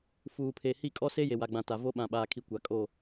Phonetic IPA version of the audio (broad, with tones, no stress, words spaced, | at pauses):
fuː˨pʰe˨ hi˦˨kʼɔ˦se˦ je˨wa˨ɡ͡bã˨ ta˨ vo˦ ɓã˨ɓaː˨kʰi˨ kʷa˨kʼo˦˨